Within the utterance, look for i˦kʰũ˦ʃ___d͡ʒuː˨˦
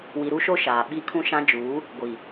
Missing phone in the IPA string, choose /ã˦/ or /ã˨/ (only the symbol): ã˦